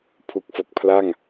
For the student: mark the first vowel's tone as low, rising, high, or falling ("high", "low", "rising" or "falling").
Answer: low